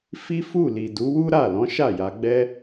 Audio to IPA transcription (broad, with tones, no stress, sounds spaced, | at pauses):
f i˦ f u˦˨ l i˨ d u˨˦ w u˦ ɾ a˦˨ l ɔ̃˨˦ ʃ a˦˨ j a˧ ɡ͡b ɛ˦